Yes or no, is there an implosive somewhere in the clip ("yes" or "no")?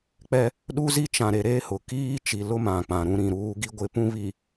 yes